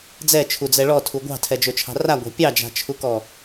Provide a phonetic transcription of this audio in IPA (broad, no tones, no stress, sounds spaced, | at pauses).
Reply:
d͡z ɛ t͡ʃʰ u d͡z ɛ ɭ ɔ tʰ u ɡʷ ɑ̤ tʰ ɛ d͡ʒ ɵ t͡ʃʰ ɑ̤ r a ɡʷ ɑ̤ pʲ ɑ d͡ʒ a̤ t͡ʃʰ u k ɔ